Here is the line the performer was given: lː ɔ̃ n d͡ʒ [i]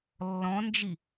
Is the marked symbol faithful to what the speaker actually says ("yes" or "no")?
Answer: yes